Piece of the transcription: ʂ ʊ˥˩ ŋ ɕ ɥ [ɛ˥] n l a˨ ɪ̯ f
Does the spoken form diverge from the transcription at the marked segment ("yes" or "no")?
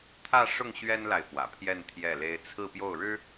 no